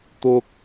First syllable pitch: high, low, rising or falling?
high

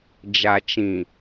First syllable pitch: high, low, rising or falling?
low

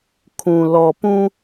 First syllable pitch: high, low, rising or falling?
low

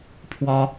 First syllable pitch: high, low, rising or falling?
high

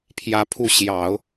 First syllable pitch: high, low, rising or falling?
high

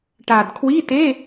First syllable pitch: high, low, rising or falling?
low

